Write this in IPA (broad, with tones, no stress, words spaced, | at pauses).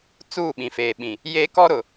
t͡suː˦˨ɓĩ˨feː˨ɓĩ˨ | je˦ kɔ˦ɾʊ˨